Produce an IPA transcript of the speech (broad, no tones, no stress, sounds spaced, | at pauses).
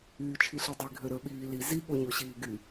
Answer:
yː t͡ʃʰ i ɬ i dˤ i ɡʱ ø ɾ ə˞ ɓ iː l i z i ɠ o ɲ o ɕ iː ɡ y